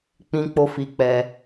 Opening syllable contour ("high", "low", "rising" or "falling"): high